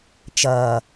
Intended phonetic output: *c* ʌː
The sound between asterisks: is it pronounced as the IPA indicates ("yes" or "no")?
no